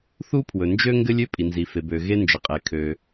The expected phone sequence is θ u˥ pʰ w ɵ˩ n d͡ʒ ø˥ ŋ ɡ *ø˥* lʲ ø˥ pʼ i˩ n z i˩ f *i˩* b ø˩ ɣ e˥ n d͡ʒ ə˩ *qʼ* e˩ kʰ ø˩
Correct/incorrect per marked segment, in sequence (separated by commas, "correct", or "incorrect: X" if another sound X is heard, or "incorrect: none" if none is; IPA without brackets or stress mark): incorrect: ɘ˥, incorrect: e˩, correct